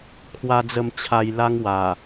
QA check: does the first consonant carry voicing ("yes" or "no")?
no